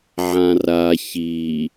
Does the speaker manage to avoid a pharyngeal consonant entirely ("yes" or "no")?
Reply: no